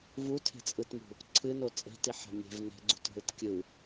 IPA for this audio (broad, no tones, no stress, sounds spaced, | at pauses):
v u tʰ e̤ t͡sʼ ɯ t m ṳ | ǀʰ ɨ n o t͡sʼ e̤ t i ħ a̤ mʲ e̤ v n e̤ ɡ͡ǀ ṳ t ɦ ɯ t kʲ ɯ